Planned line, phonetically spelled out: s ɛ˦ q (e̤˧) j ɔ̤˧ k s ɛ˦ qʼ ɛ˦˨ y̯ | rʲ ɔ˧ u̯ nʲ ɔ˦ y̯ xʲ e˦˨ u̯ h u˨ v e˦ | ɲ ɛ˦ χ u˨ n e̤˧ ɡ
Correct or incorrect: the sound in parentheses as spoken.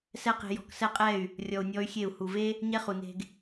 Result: correct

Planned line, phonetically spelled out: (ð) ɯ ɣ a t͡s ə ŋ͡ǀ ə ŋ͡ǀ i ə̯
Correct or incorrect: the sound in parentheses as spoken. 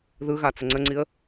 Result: correct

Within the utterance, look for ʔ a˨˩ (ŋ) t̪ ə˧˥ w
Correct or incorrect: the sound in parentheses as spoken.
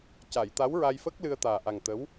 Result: correct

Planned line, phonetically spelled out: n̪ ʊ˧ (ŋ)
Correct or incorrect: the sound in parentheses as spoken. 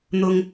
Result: correct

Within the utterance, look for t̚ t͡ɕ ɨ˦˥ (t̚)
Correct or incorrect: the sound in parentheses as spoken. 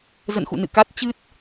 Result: correct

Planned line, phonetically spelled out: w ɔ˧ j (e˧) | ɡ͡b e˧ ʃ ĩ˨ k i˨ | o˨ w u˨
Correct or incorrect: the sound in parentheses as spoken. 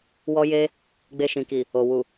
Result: correct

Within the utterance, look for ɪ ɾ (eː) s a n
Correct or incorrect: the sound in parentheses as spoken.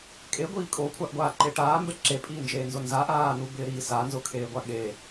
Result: incorrect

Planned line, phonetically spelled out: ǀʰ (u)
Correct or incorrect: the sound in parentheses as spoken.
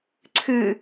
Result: incorrect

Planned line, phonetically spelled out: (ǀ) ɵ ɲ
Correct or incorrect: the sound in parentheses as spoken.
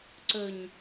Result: correct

